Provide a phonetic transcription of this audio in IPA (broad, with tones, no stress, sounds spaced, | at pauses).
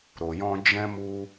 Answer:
ɾ o˨ j ɔ̃˧ d͡ʒ ɛ̃˦ m u˦